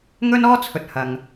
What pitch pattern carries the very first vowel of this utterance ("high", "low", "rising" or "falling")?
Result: high